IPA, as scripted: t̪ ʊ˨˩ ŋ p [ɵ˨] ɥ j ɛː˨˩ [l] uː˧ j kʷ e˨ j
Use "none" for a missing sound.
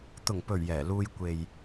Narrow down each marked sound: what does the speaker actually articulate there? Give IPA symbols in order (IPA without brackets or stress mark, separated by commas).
ɵ˨˩, l